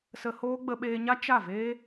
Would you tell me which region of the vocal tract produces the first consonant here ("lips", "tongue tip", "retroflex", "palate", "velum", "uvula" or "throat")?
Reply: tongue tip